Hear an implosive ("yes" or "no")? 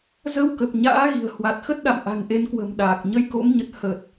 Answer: yes